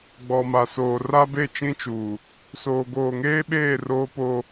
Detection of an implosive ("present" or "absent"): present